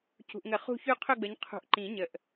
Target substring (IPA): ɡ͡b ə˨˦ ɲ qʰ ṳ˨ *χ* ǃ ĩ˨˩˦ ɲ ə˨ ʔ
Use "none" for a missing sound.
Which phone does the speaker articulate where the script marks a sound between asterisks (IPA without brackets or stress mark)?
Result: ʔ